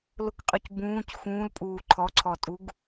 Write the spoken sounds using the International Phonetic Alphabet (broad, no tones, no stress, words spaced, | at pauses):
lʊkqʼœc bũːc xũːlpʼuː ǃʰɔǀʰɔtʼuɡ